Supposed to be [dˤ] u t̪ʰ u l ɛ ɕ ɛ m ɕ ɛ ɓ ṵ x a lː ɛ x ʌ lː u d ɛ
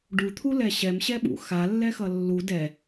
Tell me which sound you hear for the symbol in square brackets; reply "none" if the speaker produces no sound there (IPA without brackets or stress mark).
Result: ɖ